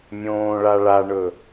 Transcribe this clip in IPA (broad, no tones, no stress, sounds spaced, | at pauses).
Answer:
mʲ õː ɭ a ɭ a ɳ ɵ